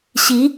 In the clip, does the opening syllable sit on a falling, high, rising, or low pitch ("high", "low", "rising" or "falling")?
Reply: rising